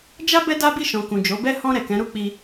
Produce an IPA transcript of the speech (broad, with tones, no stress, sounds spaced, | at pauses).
d͡ʒ a˦ b ɛ˦ d a˦ b i˦˨ ʃ ɔ̃˨ k ũ˨ d͡ʒ o˨˦ b ɛ˦ h ɔ̃˧ ɾ ɛ˨ k ɛ̃˨˦ ɾ u˦ k͡p i˧